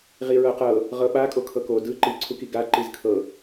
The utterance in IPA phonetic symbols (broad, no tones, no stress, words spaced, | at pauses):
ʁiɹɤqɤ | ʁɤɓakʼo kʰɤko dɯ ǃiǀʰuki ɡaǃiz kʰɤ